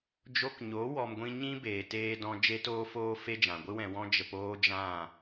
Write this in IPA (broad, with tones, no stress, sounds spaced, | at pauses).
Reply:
d͡ʒ o˧ k ɲ o˨˦ w ɔ˧ m ɡʷ ĩ˦ ɲ ĩ˦ b eː˨ t eː˧ d ɔ̃˧ d͡ʒ e˦ t oː˦ f oː˦ f e˦ d͡ʒ ã˨ ɡʷ ɨ˦ w ɛ̃˧ w ɔ̃˦ d͡ʒ ə˧ p oː˦ d͡ʒ ã˦˨